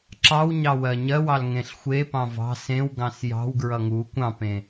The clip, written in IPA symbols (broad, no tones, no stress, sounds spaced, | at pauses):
ǁ ɑ w ɲ ɑ w ɜ ɲ ɜ w ɑ l ŋ ẽ ɬ xʷ e p ɑ̃ v ɑ̤ s ẽ w ɡ ɑ̃ s j ɑ̤ w ɡ ɹ ʌ ŋ u kʷ ɑ̃ p ẽ